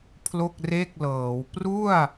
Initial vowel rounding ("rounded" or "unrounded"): rounded